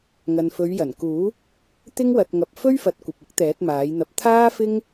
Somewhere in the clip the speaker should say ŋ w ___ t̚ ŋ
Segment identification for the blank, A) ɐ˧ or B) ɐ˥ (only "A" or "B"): A